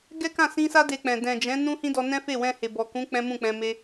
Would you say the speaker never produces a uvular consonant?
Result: yes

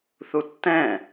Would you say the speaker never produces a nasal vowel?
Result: no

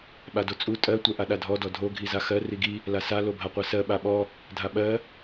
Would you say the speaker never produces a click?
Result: yes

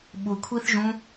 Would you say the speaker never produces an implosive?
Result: no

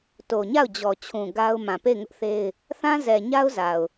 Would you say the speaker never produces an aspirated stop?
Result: no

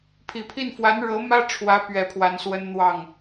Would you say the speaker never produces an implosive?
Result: yes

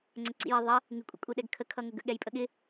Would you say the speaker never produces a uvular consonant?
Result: yes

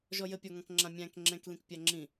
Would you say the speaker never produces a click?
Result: no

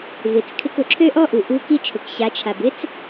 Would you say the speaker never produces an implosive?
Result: yes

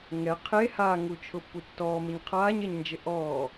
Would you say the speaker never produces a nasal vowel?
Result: yes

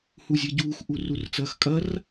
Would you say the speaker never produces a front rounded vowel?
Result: yes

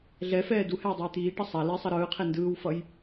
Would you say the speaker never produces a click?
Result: yes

